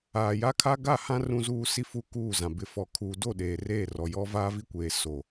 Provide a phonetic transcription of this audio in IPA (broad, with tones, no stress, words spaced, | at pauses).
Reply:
aː˨ja˦kʰa˦ ɡa˦˨hã˦ rũ˦zuː˦ si˦fu˦˨ kuː˦˨zã˨ bɪ˨fɔ˨kʰuː˨do˦˨ ɗeː˨reː˦˨rɔ˨jɔ˦ vaː˦vi˦kʷeː˨ so˨